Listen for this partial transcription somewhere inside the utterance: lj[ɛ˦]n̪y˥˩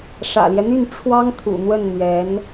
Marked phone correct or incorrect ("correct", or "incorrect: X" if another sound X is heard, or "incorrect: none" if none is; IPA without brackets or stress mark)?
correct